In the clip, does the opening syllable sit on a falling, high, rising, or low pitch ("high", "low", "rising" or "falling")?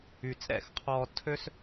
low